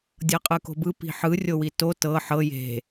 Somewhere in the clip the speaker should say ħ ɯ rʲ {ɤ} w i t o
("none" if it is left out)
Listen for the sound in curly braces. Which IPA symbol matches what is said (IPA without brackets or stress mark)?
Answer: o